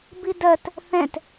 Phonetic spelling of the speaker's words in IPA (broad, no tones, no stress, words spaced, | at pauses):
bidɜt | θɛ̃t